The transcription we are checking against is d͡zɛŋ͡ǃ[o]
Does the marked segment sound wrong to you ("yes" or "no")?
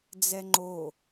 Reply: no